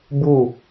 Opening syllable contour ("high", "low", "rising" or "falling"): falling